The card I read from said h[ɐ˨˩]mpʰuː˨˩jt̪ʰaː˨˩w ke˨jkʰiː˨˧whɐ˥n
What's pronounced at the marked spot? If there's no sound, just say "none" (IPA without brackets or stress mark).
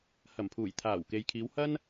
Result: ɐ˨˩